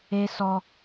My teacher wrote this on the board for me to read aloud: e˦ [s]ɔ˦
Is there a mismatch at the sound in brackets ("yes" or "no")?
no